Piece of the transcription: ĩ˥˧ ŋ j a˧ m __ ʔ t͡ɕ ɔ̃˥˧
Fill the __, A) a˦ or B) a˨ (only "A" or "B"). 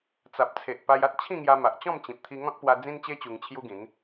B